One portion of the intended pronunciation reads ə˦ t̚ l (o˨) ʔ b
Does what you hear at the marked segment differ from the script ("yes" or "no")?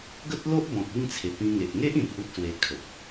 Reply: yes